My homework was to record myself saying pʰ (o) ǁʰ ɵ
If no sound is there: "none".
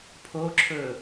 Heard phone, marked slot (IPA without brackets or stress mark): o